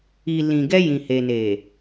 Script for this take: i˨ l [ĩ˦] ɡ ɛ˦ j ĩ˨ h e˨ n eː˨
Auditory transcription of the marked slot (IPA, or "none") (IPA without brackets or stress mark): ĩ˨